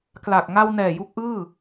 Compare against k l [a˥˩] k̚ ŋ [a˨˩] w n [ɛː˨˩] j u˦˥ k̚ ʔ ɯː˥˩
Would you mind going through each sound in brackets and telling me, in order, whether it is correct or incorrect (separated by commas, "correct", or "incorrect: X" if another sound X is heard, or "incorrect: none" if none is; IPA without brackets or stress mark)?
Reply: incorrect: a˨˩, incorrect: a˧, correct